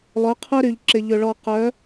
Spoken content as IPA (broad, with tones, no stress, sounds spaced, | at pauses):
lˠ œ˨˦ qʰ œ˦ ɾ y˨ ʎ ǁ ɪ˨ ʎ ʏ˨ ɭ ɔ˨ q œ˨˦